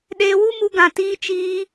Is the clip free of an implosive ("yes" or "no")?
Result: no